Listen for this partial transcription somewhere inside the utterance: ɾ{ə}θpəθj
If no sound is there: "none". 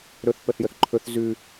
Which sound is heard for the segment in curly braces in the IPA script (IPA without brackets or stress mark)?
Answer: ɵ